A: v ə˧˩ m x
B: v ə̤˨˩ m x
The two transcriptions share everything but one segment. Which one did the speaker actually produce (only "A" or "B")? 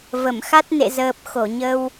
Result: A